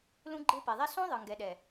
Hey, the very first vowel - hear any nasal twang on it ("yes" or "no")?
yes